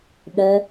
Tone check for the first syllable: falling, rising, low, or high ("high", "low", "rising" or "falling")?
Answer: high